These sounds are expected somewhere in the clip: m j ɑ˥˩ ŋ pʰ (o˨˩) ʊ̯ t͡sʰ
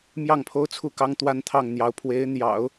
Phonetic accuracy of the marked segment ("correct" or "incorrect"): incorrect